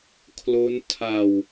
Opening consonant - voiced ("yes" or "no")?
no